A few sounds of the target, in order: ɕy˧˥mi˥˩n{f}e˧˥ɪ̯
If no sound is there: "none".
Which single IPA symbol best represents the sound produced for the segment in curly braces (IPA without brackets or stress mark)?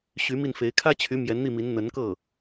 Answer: f